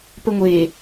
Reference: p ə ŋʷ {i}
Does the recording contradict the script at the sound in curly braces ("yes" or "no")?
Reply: yes